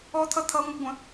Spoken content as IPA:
ɔ t̪ʰ ʌ t̪ʰ ʌ ŋʷ ʌ ɡʷ ə̃

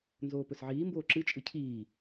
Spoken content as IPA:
n z oː p ɵ s ʕ iː m b oː ǁ ɨ t͡ʃʼ ɨ cʰ iː

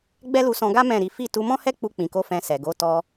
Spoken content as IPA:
ɡ͡b ɛ˦ l u˧ s ɔ̃˧ ɡ a˦ m ɛ̃˦˨ ɾ i˨˦ f i˦˨ t u˧ m ɔ̃˦ h ɛ˦ k͡p u˧ k͡p ĩ˨ k o˨˦ f ɛ̃˧ s ɛ˨ ɡ o˨˦ t ɔ˧

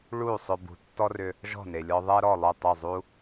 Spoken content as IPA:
ɭ u˥˩ sˤ ʏ˧ b ṳ˩˥ tː ɔ˥ r ʏ˧ | ʒ ɔ̤˥˩ n e˩ lʲ ɔ˧ ðˤ ɛ˥ ɾ ɔ˥˩ lˠ ʏ˥˩ tˤ ʏ˥˩ zˤ u˥

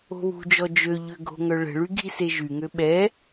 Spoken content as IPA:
o̤ β ṳ d͡ʒ ɔ d͡ʒ ø ʎ ø ɡʱ o̤ ŋ œ ɭ ə̤ ɭ y ɡʱ i s e ʒ y ŋ ø ɓ ɛ

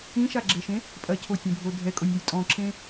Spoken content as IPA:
ĩ ʃ a ɡ͡ǁ e ʃ ẽ | pʼ ɐ cʰ o tʲ ẽ bʱ o dʱ ɛ kʼ o nʲ e j tʼ ɔ̃ ǁ ẽ

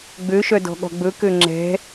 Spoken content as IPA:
ɡ͡b ø ʃ œ d ɔ̤ ɠ ɔ̤ ɡ͡b ɵ k ø ŋ͡ǁ ɛ̤

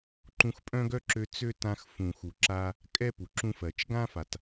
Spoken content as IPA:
ǃ ũ˧ x pʼ œ̃˥ ɡ œ˥ ǁ ø˧ t͡s ø˥ t ã˧ x f ũ˩ x u˩ ǁ a˧ | kʼ ɛ˥ p u˩ ǁ ũ˧ f ɜ˩ t͡ʃ ɡ ã˥ f a˩ t

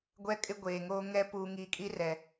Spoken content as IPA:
ɡʷ ɛ˦ kʼ ɪ˦ ɡʷ eː˨ ŋ oː˦ ŋ ɛ˦ p uː˨ ŋ iː˨ kʼ i˦ r ɛ˨

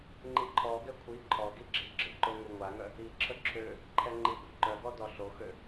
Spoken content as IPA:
ŋ͡ǃ i ǃʰ ɔ ɡ ɛ kʷʰ i ǃʰ ɔ ɡ i ɡ͡ǁ i ɡ͡ǁ ə ǃ o ŋ u ŋʷ a ŋ œ | i ǁʰ ə ǁʰ ø | ǃʰ ɛ ŋ͡ǃ i ɡʷ ə ǃ œ ɡ ɔ d ɔ ɬ o x ø

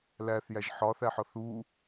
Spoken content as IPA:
l æ θ j æ ʒ ħ ɒ θ æ ħ ɒ θ u

